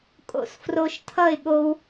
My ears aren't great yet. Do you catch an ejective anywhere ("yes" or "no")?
yes